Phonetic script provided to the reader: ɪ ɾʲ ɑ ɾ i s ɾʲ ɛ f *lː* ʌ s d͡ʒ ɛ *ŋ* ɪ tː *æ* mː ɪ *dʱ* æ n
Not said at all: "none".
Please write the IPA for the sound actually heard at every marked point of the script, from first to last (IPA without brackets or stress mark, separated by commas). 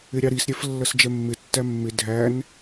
lː, mː, æ, dʱ